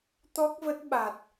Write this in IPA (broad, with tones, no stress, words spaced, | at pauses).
t̪ɔ˦˥k̚və˦˥t̚ɓa˨˩t̚